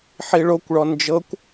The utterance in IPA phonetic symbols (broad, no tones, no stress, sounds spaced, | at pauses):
ħ i ɭ o kʷ ɭ ɔ n d͡ʒ ɤ kʷ